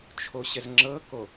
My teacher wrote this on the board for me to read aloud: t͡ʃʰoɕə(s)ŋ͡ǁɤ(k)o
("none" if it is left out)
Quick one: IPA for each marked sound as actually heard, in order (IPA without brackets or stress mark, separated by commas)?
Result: z, k